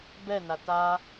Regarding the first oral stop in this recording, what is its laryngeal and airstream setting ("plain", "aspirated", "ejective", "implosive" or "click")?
plain